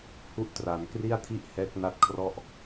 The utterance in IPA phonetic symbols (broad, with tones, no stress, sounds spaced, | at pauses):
h u˥˩ ʔ t r a˩˦ n k r i˥˩ a̯ tʰ i˥˩ ʔ h ɛː˦˥ k̚ n a˦˥ t̚ kʰ r ɔ˥˩ ʔ